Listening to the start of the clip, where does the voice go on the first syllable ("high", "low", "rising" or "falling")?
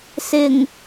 low